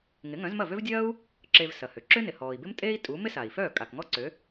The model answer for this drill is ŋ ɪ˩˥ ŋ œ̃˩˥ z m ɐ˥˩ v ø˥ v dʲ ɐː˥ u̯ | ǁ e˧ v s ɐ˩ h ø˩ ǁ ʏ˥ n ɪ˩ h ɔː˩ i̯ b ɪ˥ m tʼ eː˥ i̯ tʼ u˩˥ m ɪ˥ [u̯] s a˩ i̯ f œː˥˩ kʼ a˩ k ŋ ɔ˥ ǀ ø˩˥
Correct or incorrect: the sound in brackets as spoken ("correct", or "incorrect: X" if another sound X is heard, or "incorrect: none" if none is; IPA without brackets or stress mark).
incorrect: none